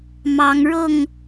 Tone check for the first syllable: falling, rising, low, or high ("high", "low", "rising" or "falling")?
rising